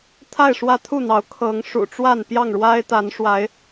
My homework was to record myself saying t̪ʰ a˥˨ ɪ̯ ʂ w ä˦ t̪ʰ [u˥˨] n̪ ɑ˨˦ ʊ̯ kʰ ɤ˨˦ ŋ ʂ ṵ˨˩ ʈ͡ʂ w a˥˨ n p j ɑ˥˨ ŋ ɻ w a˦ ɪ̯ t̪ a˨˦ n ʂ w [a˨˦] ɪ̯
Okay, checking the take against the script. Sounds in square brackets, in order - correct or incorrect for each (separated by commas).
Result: correct, correct